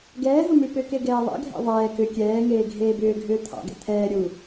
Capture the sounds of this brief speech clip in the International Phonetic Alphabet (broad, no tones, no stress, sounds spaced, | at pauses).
ɡ ɛː ɦ u m ʉ p ʏ k e ɡ ɛː ðˤ ɛ̰ ɡʱ ɛ̰ ðˤ ɛː k ʏ kʲ ɛː ŋ eː ɡʱ eː b ʏː ɡʱ ʏː t̪ʰ ɑ̰ ɡ ɛ̰ t̪ʰ ɛː ɾʲ u